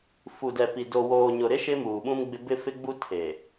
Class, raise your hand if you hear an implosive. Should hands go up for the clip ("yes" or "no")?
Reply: yes